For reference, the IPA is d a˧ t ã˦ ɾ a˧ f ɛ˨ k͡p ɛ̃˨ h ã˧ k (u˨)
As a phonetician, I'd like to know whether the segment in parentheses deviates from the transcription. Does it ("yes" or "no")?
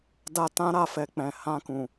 yes